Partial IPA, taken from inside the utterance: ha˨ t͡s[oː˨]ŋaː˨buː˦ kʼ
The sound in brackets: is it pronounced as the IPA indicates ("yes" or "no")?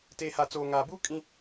yes